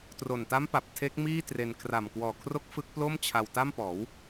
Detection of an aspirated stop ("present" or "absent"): present